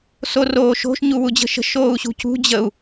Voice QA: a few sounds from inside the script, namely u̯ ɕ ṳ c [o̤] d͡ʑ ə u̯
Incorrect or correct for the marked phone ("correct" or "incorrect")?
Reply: incorrect